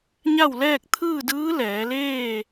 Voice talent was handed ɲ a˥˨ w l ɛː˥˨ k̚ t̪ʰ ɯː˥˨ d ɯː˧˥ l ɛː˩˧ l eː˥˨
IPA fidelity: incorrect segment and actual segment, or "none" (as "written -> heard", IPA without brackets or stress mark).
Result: none